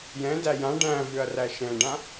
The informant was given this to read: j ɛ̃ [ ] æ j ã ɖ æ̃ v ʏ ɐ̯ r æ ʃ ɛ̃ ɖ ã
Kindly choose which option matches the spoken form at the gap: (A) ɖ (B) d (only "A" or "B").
B